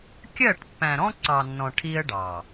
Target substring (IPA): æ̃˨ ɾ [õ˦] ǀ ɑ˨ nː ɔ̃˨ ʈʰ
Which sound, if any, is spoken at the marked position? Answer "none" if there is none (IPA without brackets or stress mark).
ɔ̃˦